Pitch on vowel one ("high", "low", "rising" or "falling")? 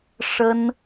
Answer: high